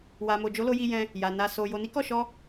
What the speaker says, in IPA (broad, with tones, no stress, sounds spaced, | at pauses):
w a˨ m o˨ d͡ʒ o˨˦ l o˧ j i˧ j ɛ̃˧ | j a˨ n a˨ s o˨ j o˨ n i˨˦ k ɔ˦˨ ʃ ɔ˧